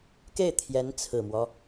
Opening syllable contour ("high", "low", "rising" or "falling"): falling